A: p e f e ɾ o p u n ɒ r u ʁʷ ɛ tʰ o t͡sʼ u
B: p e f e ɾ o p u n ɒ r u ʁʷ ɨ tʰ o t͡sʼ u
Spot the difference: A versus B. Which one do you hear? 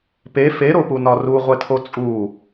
A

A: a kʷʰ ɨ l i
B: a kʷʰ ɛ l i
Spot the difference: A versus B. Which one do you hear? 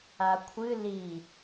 A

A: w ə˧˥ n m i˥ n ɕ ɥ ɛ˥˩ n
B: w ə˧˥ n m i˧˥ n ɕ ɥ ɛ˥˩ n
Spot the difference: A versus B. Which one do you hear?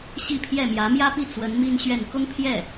A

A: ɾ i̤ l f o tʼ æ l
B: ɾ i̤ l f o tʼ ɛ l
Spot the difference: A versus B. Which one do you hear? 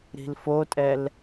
B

